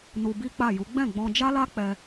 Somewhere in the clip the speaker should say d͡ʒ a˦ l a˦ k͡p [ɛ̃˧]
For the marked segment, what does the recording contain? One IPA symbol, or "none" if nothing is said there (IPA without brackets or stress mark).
ɛ˧